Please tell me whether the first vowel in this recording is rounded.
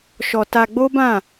yes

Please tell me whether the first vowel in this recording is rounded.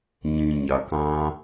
no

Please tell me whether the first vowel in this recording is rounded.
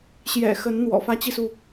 no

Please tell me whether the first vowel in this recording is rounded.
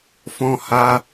yes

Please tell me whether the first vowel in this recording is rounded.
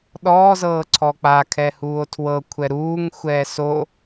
yes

